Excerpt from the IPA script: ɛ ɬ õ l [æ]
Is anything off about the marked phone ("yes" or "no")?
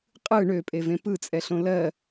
yes